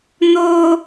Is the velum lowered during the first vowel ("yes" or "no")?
no